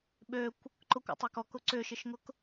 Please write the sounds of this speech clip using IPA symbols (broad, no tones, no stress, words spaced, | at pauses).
ɓøkʷ | ǃʊkʷo̰tˤøk ɔkʊ ǀʏʃɪʃŋʊk